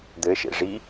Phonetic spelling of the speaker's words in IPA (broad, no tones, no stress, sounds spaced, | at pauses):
d̪ ɘ ʃ ḛ ʐ i